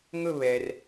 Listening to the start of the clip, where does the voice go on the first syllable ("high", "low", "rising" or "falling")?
falling